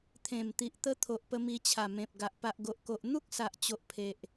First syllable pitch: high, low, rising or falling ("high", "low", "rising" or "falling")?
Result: low